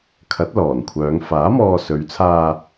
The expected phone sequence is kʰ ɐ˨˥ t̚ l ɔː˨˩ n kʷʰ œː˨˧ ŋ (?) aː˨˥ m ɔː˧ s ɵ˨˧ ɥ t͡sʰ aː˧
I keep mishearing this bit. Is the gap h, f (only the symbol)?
f